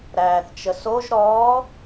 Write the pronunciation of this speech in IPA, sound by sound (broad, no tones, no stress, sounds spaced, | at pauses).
ɾ æː θ t͡ʃ ə s o ʒ ɾ ɔː